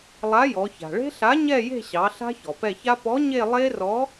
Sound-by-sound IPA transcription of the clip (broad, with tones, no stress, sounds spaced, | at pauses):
lˠ a˨˥ j ɔ˩˧ ç a̤˩ ɭ e̤˦˥ ɬ a˨˥ ɲ ɛ˦˨ j e̤˦˨ ɕ ɑ˩˧ ɬ a̤˦˥ ç ɔ˩ p ɛ˦˨ ç a˦˥ p ɔ˨˥ ɲ e˦˨ lˠ e˦˥ r ɔ˨˥